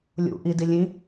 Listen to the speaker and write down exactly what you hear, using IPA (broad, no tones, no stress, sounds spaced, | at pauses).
lʲ ṵ ʔ i d i lʲ ĩ